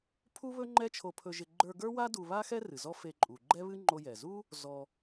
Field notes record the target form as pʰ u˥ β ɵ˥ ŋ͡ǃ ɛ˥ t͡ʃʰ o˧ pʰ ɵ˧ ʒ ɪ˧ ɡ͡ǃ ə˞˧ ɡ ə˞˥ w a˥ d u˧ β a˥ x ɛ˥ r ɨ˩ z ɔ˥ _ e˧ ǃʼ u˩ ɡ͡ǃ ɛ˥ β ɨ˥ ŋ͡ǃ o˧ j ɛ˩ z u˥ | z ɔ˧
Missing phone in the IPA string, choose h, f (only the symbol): f